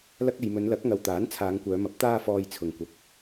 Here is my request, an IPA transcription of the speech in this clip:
l ɐ˧ k̚ e˨ j m ɵ˨˧ n l ɐ˨˥ k̚ ŋ ɐ˨ w t̪ aː˨˥ n t͡sʰ aː˨˧ ŋ kʷ œː˨˧ m ɐ˨˥ p̚ t̪ aː˥ f ɔː˧ j t͡sʰ ʊ˨ ŋ kʷ ɐ˨˥ k̚

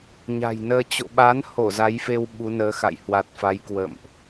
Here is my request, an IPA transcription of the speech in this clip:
ɲ a̤˨˩ j n əː˧ t͡ɕ o̰˧˨ ɓ a˨˦ n h o˧˩ z a˨˦ j f e˧ w ɓ u˨˦ n əː˨˦ x a̰˧˨ j h w a˨˩ t̚ f a˨˦ j k w ə̰˧˨ m ʔ

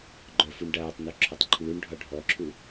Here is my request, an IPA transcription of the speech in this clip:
ɡ͡ǃ œ f u ɳ ɖ aː tˤ n u ǁʰ ɒ tˤ ǃʰ uː ɳ ɖʱ ɒ ɖʱ ɔ ǁʰ u

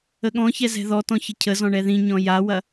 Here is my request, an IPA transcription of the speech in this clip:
ə ɠ ɔ̃ ç ɛ z ɛ̤ ð ɔ t ɔ̃ ç ə cʰ ə z ɔ̃ ɳ ɛ ð ĩ ɲ ɔ̃ j a w ɐ

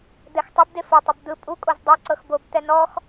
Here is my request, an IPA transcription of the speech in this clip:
d̪ ɛ x tˤ u b d e f o tˤ ɯ b d̪ ɯ pʼ u kʼ o z dˤ ɛ ǀ ɤ x b o b t̪ ɛ n ɔ x

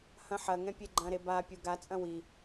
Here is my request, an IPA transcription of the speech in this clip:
h ɐ̃ ħ ɐ ŋ ɛ̃ pʲ e ɡ͡ǃ ɐ̃ ɾ e b a pʲ u ɡ a t͡sʼ ɐ̃ w i

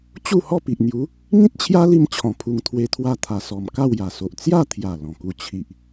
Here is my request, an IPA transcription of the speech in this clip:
t͡ɕ u˥˧ h ɔ˥˧ p i˨ ʔ n̪ j u˨˦ | ŋ ĩ˦ t̚ t͡ɕʰ j a˦ l i˧ m t͡ɕʰ ɔ̃˧ pʰ u˧ ŋ t̪ʰ w e˦ t̪ʰ w a˥˧ t̪ʰ a˨˩ s ɔ˨˩ m k a˥˧ w j a˨˩ s o˨ ʔ t͡s j a˥˧ t̪ʰ j a˨˩ l ɔ̃˨˩ k u˧ t͡ɕʰ i˨ ʔ

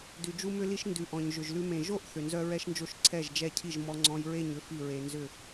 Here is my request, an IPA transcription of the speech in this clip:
d ʉ˩ d͡ʒ u˧ m ʏ˧ l i˧ ʃ n d ʉ˩ ʔ ɔ̃˩ ɲ ʒ ʏ˩ ʒ l ʉ˧ m ẽ˩ ʒ o˥˩ ʔ θ ʏ˩ n z œ˧ ɹ ɛ˧ ʃ n d͡ʒ o˧ ʃ ǀʰ ɛ˥˩ ʒ d͡ʒ ɛ˥˩ cʰ i˥˩ ʒ m ɔ˧ ŋ͡ǀ ɔ̃˧ j ɹ e˥˩ ɲ ʏ˥˩ f i˥˩ ɹ e˧ n z ʏ˥˩

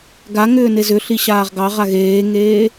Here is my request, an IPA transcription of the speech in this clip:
ɡ a ŋ ʏː n e z ʏ ɬ i ɕ aː ʁ ɡ ɑ ʁ a ɣ eː ŋ eː

